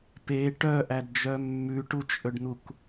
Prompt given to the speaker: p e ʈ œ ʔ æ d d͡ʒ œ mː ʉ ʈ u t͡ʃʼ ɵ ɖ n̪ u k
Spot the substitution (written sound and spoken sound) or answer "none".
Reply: none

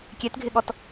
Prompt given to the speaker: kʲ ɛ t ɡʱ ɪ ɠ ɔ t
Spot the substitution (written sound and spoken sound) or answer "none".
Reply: none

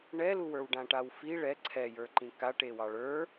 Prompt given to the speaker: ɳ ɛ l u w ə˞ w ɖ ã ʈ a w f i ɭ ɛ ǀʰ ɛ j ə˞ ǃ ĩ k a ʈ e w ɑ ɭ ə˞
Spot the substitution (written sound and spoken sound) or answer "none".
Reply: none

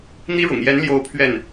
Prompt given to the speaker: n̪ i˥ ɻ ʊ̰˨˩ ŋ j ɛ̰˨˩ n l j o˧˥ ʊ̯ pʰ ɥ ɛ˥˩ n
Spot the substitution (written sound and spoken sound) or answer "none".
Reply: ɛ̰˨˩ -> ɛ˧˥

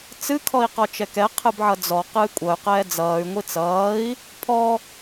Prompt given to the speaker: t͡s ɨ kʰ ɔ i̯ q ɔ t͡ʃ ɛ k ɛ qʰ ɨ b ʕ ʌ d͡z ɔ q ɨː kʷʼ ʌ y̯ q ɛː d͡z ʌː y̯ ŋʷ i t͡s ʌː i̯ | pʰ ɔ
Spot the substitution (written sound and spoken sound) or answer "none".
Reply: none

